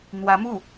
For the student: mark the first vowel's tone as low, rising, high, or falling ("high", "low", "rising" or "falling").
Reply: rising